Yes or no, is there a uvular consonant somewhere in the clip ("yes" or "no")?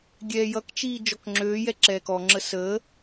no